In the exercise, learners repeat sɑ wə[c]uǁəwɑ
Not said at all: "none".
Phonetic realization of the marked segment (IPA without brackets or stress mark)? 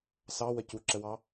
c